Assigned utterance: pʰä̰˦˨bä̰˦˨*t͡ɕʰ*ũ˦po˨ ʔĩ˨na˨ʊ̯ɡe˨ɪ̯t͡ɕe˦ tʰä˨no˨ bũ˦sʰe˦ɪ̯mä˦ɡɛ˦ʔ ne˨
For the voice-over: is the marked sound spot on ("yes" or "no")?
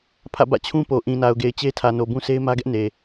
yes